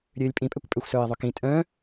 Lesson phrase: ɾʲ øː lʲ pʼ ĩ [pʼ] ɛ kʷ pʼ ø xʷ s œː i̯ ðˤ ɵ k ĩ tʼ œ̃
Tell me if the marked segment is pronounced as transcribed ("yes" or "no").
yes